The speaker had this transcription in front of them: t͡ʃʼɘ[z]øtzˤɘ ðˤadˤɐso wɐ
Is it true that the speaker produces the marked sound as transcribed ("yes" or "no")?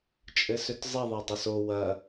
no